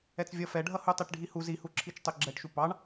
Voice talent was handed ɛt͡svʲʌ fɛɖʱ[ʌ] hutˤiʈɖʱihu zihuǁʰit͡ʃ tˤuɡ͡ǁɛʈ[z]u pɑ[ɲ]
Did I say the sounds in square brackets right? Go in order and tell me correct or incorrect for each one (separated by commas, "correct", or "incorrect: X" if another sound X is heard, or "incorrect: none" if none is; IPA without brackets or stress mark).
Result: correct, incorrect: ʃ, incorrect: ɳ